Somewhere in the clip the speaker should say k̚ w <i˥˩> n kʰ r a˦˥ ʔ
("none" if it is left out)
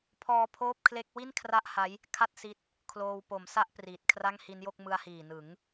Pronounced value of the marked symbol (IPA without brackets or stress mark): i˥˩